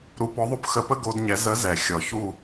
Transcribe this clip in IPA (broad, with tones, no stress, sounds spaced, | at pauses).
ɾ u˧˥ p ɔ˧˥ ðˤ o˥ p x ə˧˥ p ə˥ ɡ o˥ d ɲ ɛ˧˥ z ə˧˥ z ɛ˨˩ xʲ ɔ˨˩ ç u˦˨